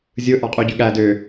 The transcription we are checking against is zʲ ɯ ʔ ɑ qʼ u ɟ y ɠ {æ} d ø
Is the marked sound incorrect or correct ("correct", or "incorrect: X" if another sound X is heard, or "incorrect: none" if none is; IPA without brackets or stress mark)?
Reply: correct